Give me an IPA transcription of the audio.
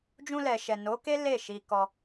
d͡ʒ ũ˧ l ɛ˨ ʃ ɛ˨ n o˨˦ k e˦ l e˦˨ ʃ i˧ k ɔ˧

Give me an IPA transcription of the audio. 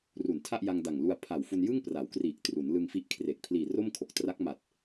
r u˨˩ n tʰ a˥˩ ʔ j a˧ ŋ d a˨˩ ŋ l u˧ a̯ pʰ a˨˩ w f u˧ n j ɯ˥˩ ŋ p r a˩˦ w k r iː˨˩ k̚ t r u˩˦ n l ɯ˧ ŋ f i˦˥ ʔ kʰ r e˨˩ k̚ pʰ l iː˨˩ r o˥˩ m kʰ o˨˩ k̚ t r a˦˥ k̚ m a˨˩ t̚

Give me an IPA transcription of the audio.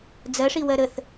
d͡z ɜ ʂ i w ɜ ɾ ə θ

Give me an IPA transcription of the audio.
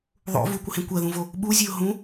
ðˤ o̰ v u kʷ ə h ẽ kʷ ɜ ð ũ v o | ɓ u zʲ e ʊ̯ ɦ ũ

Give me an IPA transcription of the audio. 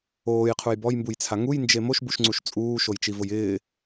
oː j qʰ u j b ɔ j m b u j t͡sʰ a ŋ u j n d͡ʒ e m o ʃ b u ʃ ŋ͡ǀ u ʃ t͡sʼ uː ʃ o j t͡ʃ i v ʊ j ɪː

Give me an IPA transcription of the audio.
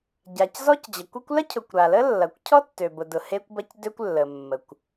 ɟ a˩ c z ɔ˥ c d͡ʑ ɐ˩ kʷ e˥ kʷ l ɐ˥ cʰ ʊ˩ kʷ ɾ a˩ l ə˥ lː ɐ˩ kʷ cʰ ɔ˥ tː ø˩ b ʊ˩ d ʊ˩ h e˥ kʷ b ɐ˥ c d ø˥ kʷ lː ə˩ mː ə˩ kʷ

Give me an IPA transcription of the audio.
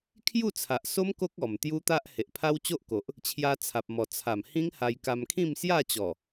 kʰ j u˥˧ t͡sʰ a˨ ʔ s o˦ m k o˦ k̚ ɔ˨˩ m t̪ j u˦ t̪ a˦ ʔ h e˨ ʔ pʰ a˦ w t͡ɕ o˦ ʔ k o˨ ʔ | t͡ɕʰ j a˧ t͡sʰ a˨ p̚ m ɔ˨˩ t͡sʰ a˨˩ m h ĩ˦ ŋ h a˧ j k a˧ m kʰ ĩ˥˧ m s j a˥˧ t͡ɕ ɔ˨˩

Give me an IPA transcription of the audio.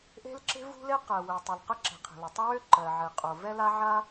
ʔ e̤˥ l ǁ e̤˥ v ṳ˥ l e˥ q ɜ˩ w ɛ˩ tˤ ʏ˩ l q ə˥ ǁ e̤˩ qʰ e̤˩ l o˩ tˤ ə˥ w ø˥ ǃ ɜ˩ ʕ e˩ qʼ o˩ v ɛ˥ l a˥ ʕ a˥

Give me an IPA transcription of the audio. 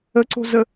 ə ǀ o̤ z ə

